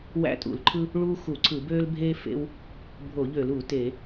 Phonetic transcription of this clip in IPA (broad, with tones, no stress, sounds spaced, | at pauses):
w æ̰˥ tʼ ṵ˧˩˧ l ǃʰ ɯ˥ | ɭ uː˥ x u˧˩˧ ǀʰ ɯ˧˩˧ b øː˥ l bʱ eː˥ f ḛ˥ w | bʱ o˧˩˧ ʎ ø˧˩˧ l u˧˩˧ t e˧˩˧